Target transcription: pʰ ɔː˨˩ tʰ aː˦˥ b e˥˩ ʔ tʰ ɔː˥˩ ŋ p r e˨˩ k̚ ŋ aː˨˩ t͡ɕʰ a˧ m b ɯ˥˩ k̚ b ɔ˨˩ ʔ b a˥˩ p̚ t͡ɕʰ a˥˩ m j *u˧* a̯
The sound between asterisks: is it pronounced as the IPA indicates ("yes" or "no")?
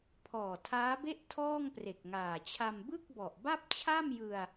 no